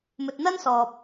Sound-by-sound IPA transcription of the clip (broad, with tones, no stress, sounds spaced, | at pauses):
m ɵ˨ t̚ n̪ ɐ˥ n s ɔː˨ p̚